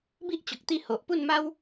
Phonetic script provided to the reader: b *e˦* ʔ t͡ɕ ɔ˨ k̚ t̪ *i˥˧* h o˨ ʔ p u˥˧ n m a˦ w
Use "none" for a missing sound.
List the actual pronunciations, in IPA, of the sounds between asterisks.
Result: i˦, i˥˧

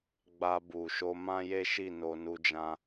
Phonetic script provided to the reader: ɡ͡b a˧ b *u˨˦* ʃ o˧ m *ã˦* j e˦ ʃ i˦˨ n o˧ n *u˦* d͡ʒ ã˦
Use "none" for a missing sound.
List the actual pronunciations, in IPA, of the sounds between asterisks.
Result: u˨, ã˦, u˦

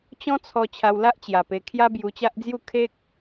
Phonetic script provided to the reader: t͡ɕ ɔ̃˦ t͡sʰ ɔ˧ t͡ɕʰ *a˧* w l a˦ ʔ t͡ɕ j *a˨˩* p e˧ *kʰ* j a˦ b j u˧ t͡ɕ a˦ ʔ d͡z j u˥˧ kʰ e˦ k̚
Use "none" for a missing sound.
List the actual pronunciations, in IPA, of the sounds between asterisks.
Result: a˧, a˨˩, kʰ

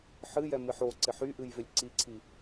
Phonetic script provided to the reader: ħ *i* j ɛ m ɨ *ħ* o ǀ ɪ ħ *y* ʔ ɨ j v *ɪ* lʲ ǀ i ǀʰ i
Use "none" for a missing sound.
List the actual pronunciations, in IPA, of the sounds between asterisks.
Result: ɨ, ħ, y, ɪ

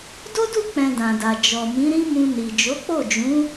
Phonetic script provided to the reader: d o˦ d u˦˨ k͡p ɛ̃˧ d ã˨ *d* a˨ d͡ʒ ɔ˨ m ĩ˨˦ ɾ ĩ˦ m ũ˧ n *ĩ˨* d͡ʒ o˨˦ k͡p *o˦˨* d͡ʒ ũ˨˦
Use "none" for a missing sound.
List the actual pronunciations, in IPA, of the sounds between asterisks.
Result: d, i˨, o˦˨

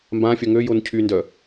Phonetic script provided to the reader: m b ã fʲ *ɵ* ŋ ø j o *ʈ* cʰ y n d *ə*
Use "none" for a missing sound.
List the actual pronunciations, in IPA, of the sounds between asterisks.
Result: œ, n, œ

